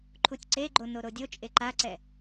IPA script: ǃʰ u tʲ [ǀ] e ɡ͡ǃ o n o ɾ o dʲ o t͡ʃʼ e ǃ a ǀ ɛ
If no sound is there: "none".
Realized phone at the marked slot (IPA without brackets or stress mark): ǀ